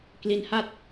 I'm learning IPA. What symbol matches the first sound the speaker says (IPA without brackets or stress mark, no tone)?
k